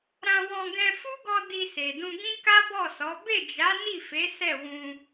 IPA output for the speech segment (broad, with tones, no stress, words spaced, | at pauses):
ɾã˧wɔ̃˧ ɡɛ̃˧fu˦ɡɔ˧ di˧se˨dũ˧ ɡĩ˦ka˦bɔ˦˨sɔ˨˦ be˦˨d͡ʒa˨˦ni˦˨fe˨˦ sɛ˦˨wũ˧